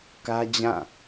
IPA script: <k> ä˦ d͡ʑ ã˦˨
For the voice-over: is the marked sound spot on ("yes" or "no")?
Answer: yes